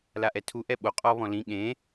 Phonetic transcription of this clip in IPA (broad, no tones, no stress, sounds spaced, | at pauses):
l a ʔ ɛ tʰ u ʔ ɛ ɓ o qʼ ɔ β ɔ̃ l ĩ ɠ ẽ